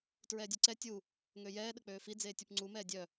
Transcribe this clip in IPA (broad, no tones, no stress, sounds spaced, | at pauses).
t ɹ ɛː dʲ e ǀ ɛ tʲ u | ŋ ø j ɛː ɗ ə k͡p øː f i d͡z eː tʲ u p ŋ͡ǀ u m ɛː dʲ œ